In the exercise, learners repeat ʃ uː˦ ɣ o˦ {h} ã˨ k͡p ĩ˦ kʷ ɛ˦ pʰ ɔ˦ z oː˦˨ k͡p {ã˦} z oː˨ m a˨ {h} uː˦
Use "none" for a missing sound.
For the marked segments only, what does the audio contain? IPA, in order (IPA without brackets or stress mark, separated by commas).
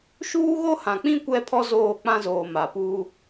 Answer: h, ã˦, p